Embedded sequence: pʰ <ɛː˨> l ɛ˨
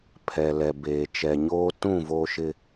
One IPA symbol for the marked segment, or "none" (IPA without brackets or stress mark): ɛ˨